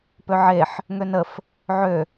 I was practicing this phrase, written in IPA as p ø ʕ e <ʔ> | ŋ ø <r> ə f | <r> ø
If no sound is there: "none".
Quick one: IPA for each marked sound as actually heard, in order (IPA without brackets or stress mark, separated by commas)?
ħ, n, ʕ